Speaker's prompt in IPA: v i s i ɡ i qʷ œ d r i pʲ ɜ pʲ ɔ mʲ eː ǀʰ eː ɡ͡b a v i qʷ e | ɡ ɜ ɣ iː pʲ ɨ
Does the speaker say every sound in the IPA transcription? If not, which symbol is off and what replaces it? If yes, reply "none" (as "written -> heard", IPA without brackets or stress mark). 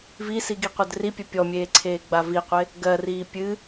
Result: ɣ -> r